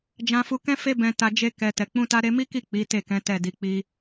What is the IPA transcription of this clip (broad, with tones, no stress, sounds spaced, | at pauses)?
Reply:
d͡ʒ ã˧ f u˧ k ɛ̃˦ f e˦ b ɛ̃˧ t a˧ d͡ʒ e˦ k ɛ˧ t ɛ˨ k͡p ũ˧ t a˧ ɾ e˧ m i˦ k i˦˨ k͡p i˨˦ t e˦˨ k ɛ̃˨˦ t ɛ˦˨ d i˧ k͡p i˧